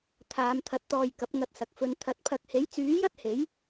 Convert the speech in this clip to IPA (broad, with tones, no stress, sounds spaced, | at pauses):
t̪ʰ aː˨˧ m t̪ʰ ɐ˨˥ t̚ t̪ ɔː˧ j k ɐ˨˥ p̚ ŋ ɐ˧ t̚ s ɐ˨ k̚ f ɵ˨˧ n t̪ʰ ɐ˨˥ t̚ pʰ ɐ˧ k̚ h e˨˥ j t͡s yː˨˥ j ɐ˥ t̚ h e˨˥ j